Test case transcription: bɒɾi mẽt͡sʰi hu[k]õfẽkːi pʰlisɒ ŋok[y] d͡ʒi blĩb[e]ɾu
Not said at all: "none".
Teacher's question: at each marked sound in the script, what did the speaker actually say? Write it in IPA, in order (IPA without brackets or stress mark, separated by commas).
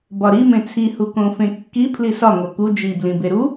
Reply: k, u, e